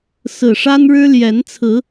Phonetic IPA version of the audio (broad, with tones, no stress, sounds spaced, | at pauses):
s ɹ̩˨˩ ʂ a˦ n ɻ ɻ̩˦ l j ɛ˨˦ n t͡sʰ ɹ̩˨˦